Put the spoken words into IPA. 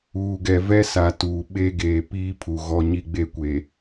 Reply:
uː˨ ɡ ɛ˨ v ɛ˦ s a˨ t uː˨ ɓ e˦ ɡ eː˨ p iː˦ pʰ u˨ ɣ ɔ˦ ɲ i˦ ɡ͡b e˦ kʷ e˨

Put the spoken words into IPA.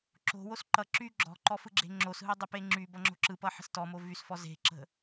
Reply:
ǁ o̤ w o s ǃ ʌ ǁ y ɡ͡ǁ ɔ̤ ǃ ɔ f ɯ ɡ͡ǁ e̤ ŋ͡ǁ o s ɦ ɯ dˤ ə p e ŋ͡ǁ y b ʌ ŋ͡ǁ o̤ ǁ ɯ p ʌ ħ ə̤ s t ɔ m o v y s f ɔ z e̤ ǁ ə̤

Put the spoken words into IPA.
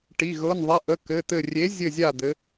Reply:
ʈ i˩˧˩ ɣ ɤ˩˧˩ n ðˤ ɛ˩˧˩ ʔ ə˩˧˩ k ɘ˩˧˩ t̪ ɘ˧˩ rʲ e˨˥ zʲ ɘ˧˩ zʲ a˧˩ d̪ ɘ˩˧

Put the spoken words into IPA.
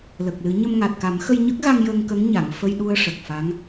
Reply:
l ə˨˩ k̚ l ɨ˨˩˦ ɲ ə˧ m ŋ a˨˩ t̚ k a˨˩˦ m x ə˧ j ɲ ə˦˥ k̚ ɣ a˧ ŋ j ə˧ ŋ k ə˧˥ ŋ ɲ a˨˩˨ ŋ f ə˧ j ɗ u˧ ə̯ ʂ ə˨˩ k̚ f a˧˥ ŋ

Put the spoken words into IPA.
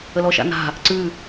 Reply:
ə l ɔ ʃ a̰ n a̤ | ǀ ʉ

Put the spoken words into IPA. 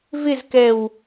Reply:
v ɪ z k ɛ w

